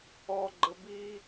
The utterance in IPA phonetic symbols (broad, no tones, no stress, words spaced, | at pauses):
ɔɡ͡ǃə bi